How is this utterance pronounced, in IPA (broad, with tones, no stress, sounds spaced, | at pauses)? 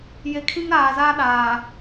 j e˨ kʰ ĩ˦ ŋ ɾ aː˨ z aː˦ ɗ aː˨